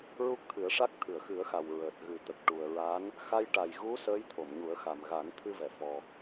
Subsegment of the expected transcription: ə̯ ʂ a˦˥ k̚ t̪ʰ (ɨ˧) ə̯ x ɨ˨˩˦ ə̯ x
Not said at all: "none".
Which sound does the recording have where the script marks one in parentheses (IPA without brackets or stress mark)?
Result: ɨ˨˩˨